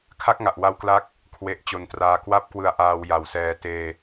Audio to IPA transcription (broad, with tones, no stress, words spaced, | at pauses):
kʰa˥˩k̚ŋa˨˩ʔwa˦˥wklaː˦˥k̚ | kʰwe˨˩ʔ t͡ɕo˨˩ntraː˧ kwa˥˩p̚ kwɯ˧a̯ʔaː˧w ja˨˩wsɛː˧ teː˧